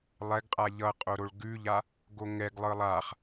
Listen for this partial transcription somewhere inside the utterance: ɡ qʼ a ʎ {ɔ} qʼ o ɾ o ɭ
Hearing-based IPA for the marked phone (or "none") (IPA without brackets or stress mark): ʌ